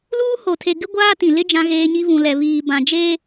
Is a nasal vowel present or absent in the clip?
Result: present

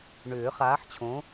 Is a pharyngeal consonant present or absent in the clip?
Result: present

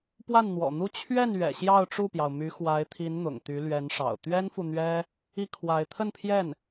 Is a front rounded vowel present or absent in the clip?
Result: present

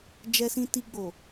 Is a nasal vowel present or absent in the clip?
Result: present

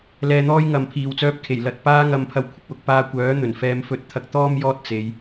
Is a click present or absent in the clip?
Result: absent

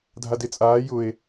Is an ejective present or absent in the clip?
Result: present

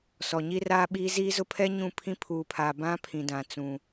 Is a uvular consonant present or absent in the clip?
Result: absent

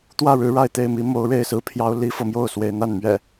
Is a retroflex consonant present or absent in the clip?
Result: present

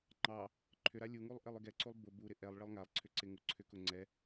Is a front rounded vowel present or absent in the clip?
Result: present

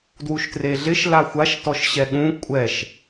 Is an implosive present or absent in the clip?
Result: present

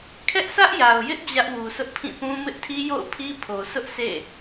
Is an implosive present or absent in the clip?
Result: absent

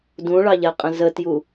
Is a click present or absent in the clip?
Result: absent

